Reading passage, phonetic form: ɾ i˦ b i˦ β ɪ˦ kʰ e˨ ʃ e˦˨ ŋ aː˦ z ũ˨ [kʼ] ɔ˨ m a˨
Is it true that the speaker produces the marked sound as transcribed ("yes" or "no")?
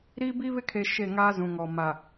no